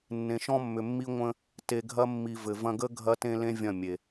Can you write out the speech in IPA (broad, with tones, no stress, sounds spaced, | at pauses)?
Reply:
nː ẽ˨ ʃ ɔ̃˧ mː ʏ˨ mː i˧ ŋʷ ə̃˦ | t e˨ ɡʱ ɐ˧ mː i˨ v ɘ˨ v ɐ̃˧ ɡ ə˦ ɡʱ ɐ˦ t ẽ˦ l ẽ˦ vʲ ɐ̃˦˨ mʲ e˨